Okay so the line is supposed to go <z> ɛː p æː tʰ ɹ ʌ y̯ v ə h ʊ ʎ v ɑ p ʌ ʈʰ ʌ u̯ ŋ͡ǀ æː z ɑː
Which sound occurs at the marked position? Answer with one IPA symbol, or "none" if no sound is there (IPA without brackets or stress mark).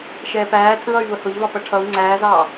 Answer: ʃ